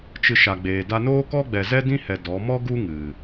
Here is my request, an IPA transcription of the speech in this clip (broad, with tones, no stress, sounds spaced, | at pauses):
t͡ʃ ɨ˧ ʃ a˨ ɡ͡b eː˨ d a˦ n oː˦ k ɔ˦ ɡ͡b ɛ˨ z ɛ˦ d ĩ˦ h ɛ˨ d ɔ˨˦ m ɔ˦ ɡ u˦ ŋ ɨ˨